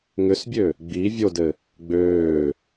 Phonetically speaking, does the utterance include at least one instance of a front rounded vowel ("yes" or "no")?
yes